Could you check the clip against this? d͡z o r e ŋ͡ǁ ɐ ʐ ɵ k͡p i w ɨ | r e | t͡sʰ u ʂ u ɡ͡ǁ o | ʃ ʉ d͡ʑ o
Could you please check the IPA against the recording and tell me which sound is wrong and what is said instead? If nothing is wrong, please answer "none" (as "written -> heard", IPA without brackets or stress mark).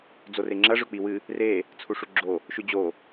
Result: none